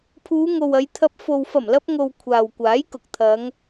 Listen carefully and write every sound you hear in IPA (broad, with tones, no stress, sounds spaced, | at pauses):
pʰ uː˨˧ ŋ o˨ w ɐ˨˧ j t̪ʰ ɐ˧ p̚ f o˨ w f ɐ˨˩ m l ɐ˧ p̚ ŋ o˨ w kʷʰ aː˨ w kʷ aː˨˥ j k ʊ˨ k̚ t̪ʰ ɐ˨˧ ŋ